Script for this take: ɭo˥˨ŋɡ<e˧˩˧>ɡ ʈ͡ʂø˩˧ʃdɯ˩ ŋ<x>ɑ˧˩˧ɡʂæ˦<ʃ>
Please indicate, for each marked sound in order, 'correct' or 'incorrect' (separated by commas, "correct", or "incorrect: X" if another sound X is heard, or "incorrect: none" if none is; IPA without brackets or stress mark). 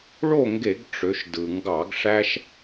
correct, incorrect: ɡ, correct